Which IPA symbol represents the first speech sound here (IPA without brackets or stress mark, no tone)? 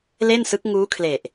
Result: l